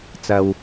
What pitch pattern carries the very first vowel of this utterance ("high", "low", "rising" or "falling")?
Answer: low